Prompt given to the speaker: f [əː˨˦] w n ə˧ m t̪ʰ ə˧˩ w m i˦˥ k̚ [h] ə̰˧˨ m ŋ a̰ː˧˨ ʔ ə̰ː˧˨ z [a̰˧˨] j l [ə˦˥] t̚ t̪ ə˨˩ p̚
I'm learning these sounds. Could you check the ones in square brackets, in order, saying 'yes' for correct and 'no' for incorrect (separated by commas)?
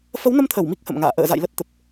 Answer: no, yes, yes, yes